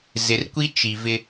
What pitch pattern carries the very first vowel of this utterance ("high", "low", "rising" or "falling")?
low